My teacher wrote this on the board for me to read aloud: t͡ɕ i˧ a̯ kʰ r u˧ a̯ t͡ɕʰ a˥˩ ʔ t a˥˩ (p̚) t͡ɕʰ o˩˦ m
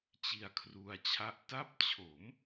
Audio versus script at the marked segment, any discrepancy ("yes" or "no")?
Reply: no